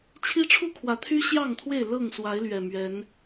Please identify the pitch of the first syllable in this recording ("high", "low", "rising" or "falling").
high